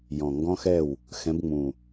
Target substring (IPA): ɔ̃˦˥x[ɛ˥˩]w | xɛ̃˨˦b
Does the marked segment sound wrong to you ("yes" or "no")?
no